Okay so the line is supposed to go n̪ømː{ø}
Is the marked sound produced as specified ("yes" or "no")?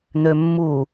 no